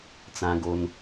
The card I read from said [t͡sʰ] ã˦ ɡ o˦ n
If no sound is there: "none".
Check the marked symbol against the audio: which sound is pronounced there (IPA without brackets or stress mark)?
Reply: t͡s